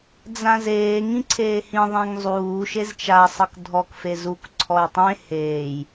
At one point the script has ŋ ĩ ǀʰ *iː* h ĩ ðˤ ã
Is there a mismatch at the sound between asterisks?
yes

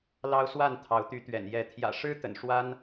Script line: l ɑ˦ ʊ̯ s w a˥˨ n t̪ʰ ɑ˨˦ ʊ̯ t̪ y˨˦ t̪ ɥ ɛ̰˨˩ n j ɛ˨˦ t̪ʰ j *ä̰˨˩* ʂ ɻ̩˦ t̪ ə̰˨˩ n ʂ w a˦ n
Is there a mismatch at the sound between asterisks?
no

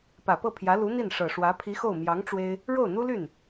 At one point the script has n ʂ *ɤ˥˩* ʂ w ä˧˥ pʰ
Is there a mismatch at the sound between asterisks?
yes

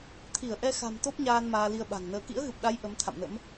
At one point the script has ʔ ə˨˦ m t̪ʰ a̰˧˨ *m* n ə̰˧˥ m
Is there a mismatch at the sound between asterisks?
no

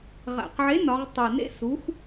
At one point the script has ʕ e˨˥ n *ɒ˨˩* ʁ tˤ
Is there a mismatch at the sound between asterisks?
yes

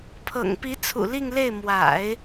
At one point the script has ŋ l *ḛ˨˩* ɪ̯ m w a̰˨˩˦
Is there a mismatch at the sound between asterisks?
yes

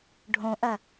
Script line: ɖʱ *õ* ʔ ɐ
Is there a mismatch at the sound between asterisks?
no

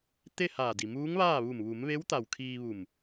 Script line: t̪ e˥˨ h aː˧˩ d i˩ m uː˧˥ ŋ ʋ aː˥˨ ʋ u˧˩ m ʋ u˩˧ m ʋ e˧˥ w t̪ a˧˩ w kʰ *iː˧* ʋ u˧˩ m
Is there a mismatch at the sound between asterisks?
no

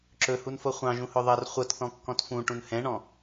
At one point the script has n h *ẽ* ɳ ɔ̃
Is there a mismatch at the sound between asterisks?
yes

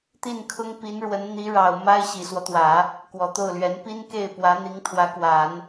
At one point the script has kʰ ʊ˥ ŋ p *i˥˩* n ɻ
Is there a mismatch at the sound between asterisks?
yes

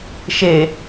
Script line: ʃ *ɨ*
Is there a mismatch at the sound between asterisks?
yes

